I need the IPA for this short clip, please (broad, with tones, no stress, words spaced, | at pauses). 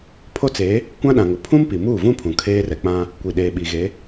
pʰo˦t͡se˨˦ | kʷã˦ɗã˨ŋʊ˨ pʰũ˦mpi˨muː˦˨vũ˦ pʰũ˨kʰeː˦rɛ˨k͡pã˦ | kʷi˨ɗeː˨ɓi˨ɣe˨˦